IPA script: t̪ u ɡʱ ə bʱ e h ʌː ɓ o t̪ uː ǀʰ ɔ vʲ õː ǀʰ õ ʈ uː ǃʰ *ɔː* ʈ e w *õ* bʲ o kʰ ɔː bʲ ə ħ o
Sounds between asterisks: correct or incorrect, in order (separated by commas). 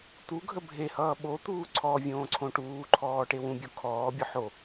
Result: correct, incorrect